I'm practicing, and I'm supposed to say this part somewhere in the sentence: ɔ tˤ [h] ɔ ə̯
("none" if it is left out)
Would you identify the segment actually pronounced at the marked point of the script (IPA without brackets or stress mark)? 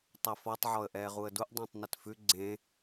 ʕ